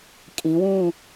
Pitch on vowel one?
rising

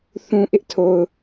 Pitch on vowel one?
low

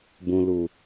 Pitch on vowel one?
low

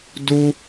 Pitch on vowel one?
high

